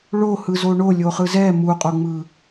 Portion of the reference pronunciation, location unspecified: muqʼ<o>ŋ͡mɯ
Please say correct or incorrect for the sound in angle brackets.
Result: correct